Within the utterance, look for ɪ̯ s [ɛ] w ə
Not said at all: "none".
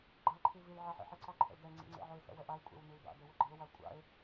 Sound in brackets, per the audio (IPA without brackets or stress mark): ɛ̰